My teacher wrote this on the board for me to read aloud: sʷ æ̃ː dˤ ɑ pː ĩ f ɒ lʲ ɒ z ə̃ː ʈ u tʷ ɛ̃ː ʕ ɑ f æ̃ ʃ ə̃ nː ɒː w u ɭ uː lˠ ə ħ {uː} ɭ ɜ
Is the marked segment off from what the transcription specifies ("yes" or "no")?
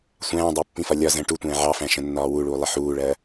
no